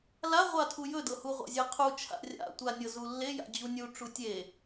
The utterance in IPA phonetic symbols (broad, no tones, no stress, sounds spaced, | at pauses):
l a ʁʷ a tʰ u j ɵ d ɤ h u ʁʷ a̰ zʲ e qʰ u t͡ʃʰ a̰ rʲ a̰ tʷ a nʲ ɤ z u lː e j a̰ d͡ʑ u nʲ u ʈ͡ʂ u tʲ e